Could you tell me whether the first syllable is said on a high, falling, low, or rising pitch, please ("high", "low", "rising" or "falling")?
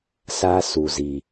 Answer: high